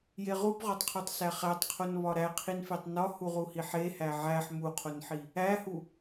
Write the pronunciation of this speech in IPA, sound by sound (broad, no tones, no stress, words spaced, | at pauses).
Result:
jeʁubʁɒtˤqʰutˤ sæχætˤqʰon βɒɾæqʰin fetˤnɒ huʁuhiħe hæʕæħ muqʰonħi | æhu